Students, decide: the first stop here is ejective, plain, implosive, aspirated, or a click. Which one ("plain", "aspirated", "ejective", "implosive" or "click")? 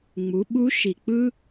implosive